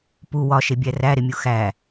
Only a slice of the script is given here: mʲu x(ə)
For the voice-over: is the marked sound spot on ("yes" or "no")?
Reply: no